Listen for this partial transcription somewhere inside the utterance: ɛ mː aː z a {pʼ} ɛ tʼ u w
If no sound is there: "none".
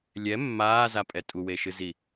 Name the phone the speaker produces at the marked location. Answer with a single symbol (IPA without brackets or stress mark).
pʼ